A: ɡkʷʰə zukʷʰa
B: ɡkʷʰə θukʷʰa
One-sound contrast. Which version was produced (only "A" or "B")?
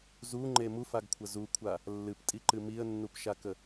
A